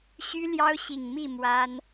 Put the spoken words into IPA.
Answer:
ɕ y˦ l j ɑ˦ ʊ̯ ɕ i˨˩ ŋ m i˥˨ m w a˦ n

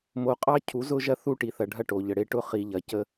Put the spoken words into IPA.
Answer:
m o˨ qʼ ɑ˦ cʰ u˨˦ z ʊ˦ ʒ ɐ˦ θ u˦˨ ʈ i˨ θ ɐ˨ ɖʱ ɐ˦˨ ʈ o˨ ʎ ə˨ ɽ e˦ ʈ ʊ˦ χ i˨ ʎ ɐ˨ c ə˦

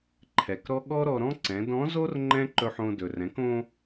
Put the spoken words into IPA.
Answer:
ǃʰ ɛ˩ k ɾ ɔ˥ ɠ ɔ˥ ɾ ɔ˧ ɾ ɔ̃˥ ǀ ɛ̃˩˧ d ɔ̃˧˥ z o˥ r ŋ͡ǃ ɛ̃˥ ǃ ɵ˧ ħ õ˧ d ɵ˩ r ɛ̃˩˧ k õ˧

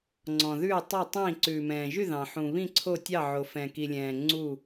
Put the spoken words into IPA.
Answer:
ŋ͡ǀ ɔ̃˩ ð ʉː˧˩ tˤ o˧˩ tˤ ĩ˧˩ ǀ ʉː˩ m ɛ̃ː˩ ʒ y˧˩ ð ɑ̃˩ ħ ũ˩ β ĩ˧˩ ǀʰ o˧˩ tʲ ɑ˧˩ ʕ o˩ f ɛ̃˩ k i˩ lʲ ɛ̃ː˩ ŋ͡ǀ u˧˩

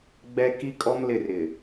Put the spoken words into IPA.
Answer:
ɡ͡b ɛ˦ k i˦ kʼ ɔ˦ m l ɪ˦˨ r ɪ˨

